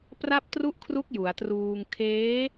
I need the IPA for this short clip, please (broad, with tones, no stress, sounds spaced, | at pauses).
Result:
p r a˥˩ p̚ t r u˥˩ ʔ kʰ r u˦˥ k̚ j u˩˦ a̯ t r uː˧ ŋ kʰ eː˦˥